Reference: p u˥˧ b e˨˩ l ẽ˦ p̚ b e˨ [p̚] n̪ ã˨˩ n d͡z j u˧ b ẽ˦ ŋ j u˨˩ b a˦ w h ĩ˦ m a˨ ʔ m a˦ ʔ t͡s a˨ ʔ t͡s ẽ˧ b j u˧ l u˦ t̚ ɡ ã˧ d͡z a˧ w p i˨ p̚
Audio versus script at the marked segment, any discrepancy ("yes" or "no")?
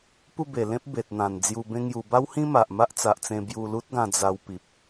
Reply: yes